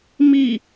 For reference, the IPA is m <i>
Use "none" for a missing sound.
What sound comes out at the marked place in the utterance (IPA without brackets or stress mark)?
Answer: i